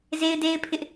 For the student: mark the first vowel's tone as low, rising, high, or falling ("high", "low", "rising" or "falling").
high